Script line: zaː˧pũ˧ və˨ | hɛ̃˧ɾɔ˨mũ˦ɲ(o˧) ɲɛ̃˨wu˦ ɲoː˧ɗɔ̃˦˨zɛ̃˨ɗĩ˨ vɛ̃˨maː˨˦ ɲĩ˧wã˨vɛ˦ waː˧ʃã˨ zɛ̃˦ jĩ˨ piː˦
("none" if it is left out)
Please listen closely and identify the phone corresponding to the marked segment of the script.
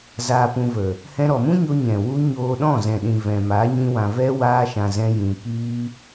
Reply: o˧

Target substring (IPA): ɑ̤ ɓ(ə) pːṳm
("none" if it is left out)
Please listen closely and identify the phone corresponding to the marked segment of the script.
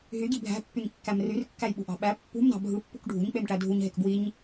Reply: æ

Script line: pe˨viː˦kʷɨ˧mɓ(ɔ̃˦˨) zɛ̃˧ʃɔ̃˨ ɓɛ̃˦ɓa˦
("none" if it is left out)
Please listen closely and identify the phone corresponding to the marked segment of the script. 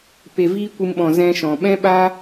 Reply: ɔ̃˨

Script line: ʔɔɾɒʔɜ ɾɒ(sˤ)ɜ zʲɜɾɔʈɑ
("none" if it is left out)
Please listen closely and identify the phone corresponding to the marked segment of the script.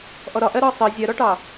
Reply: sˤ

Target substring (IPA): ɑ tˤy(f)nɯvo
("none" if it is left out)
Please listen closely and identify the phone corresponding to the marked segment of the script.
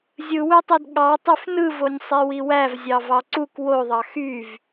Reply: f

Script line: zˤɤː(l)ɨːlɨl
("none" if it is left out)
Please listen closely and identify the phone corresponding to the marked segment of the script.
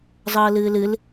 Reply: l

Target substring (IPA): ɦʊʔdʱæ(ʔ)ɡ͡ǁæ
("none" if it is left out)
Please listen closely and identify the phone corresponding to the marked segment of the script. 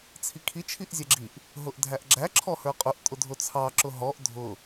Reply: ʔ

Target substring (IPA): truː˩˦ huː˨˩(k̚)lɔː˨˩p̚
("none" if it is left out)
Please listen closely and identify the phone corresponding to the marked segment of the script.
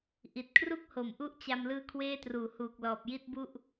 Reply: k̚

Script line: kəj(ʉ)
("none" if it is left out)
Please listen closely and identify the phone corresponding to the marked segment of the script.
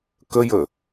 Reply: ə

